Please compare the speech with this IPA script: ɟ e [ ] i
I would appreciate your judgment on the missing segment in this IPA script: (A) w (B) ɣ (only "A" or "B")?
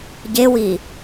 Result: A